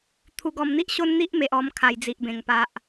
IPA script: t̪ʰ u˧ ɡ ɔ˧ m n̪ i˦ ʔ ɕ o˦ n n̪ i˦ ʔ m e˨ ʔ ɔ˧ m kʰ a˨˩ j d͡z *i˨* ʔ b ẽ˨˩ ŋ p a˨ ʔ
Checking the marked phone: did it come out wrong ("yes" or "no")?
no